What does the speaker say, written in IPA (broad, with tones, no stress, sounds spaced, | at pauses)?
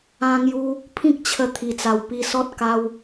ã˧ ŋ j u˧ | pʰ ĩ˦ k̚ t͡ɕʰ ə˧ t̪ʰ i˨˩ t͡s a˨˩ w p i˧ s ɔ˦ t̚ k a˧ w